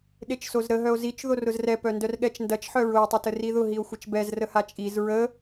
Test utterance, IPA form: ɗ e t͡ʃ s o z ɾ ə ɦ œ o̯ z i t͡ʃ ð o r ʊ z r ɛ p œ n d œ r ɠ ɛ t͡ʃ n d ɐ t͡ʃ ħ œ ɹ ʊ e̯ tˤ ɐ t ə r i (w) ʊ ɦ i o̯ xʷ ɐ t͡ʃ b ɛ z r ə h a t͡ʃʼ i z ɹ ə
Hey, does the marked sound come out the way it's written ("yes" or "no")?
no